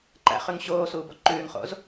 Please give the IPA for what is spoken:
ǃ æ̰ χ ʉ ŋ ɕ oː s uː b ɔ ǃ ʉː ŋ χ o̰ z

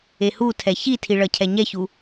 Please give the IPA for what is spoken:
e h u tʰ ɛ ç i tʰ i ɭ ʌ cʰ ɛ ɲ ɛ ç u

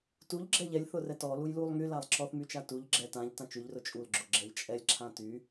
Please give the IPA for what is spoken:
t u ʎ ɡ͡ǁ ɛ ʎ ɛ lʲ θ ʊ r ɛ t ɔ l u j l u lˠ ŋ y l a lˠ ǁ ɔ θ m y t͡ʃ a t u ʎ ɡ͡ǁ ɛ t ã ʎ t ã t͡ʃ y ʎ r ʊ t͡ʃʼ u l ɡ͡ǁ ʊ ɡ͡ǁ ɛ ʎ t͡ʃʼ ɛ lʲ ǁʰ ã t y

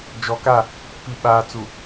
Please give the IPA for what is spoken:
d͡ʒ ɔ˨ k a˦˨ | p i˨ ɓ aː˨ t͡s u˨

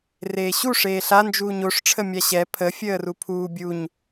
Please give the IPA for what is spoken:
r eː ɕ u ʂ eː ɬ a n d͡ʒ uː ɲ o ʂ ʈ͡ʂʰ ə mʲ a ɕ ɛ pʰ ə fʲ əː r u pʰ uː bʲ u ɲ

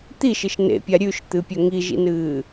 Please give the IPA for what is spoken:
t̪ i ʃ ɨ ʃ n ḛ pʲ a ɾʲ ʉ ʃ t̪ ɨ pʲ ɵ ŋ i ʒ ḭ n ɨː

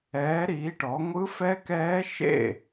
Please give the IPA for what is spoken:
ɛː˨˥ ɾ iː˨˥ ʈ ɔ˨˥ ŋʷ ɯ˦˥ f ɛ˦˥ k ɛː˦˥ ʃ ḛ˥˨

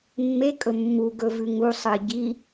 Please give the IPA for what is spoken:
mː e kʼ ɵ mː u ɡ ɵ v ʉ ŋ u sˤ ɨ ɟ i

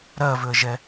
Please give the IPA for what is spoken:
ɾ ɜ v ʏ ə̯ ʒ ɛ

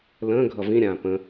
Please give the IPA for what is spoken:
l ə̃ː ɡʱ ʌ v ĩ ɾʲ ãː p ə̃

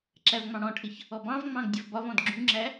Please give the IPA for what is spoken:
ǁ æ v ŋ͡m ɑ̃ ɽ ɔ̃ ʈʰ ɪ ç | ɔ b ɑ̃ v ŋ͡m ɑ̃ ɡ dʲ ə v b ɒ v ɔ̃ d ɡ͡ǁ ũ ŋ͡ǁ æ

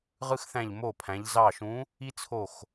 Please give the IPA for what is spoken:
ʁ ɯ˦ x θ æ̃˧˩ ʎ m o˧˩ pʰ æ̃˩˧ ʎ z ɑ˧˩ ʃ ũ˨˥ | i˦ t͡sʰ o˧˩ x

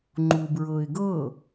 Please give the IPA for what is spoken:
ŋ͡ǃ u b ɹ ɤ ɪ̯ ɡ ɤ

